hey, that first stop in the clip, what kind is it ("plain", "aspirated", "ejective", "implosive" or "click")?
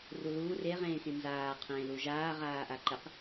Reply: aspirated